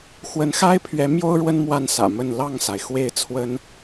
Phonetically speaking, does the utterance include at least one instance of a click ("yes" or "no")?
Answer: no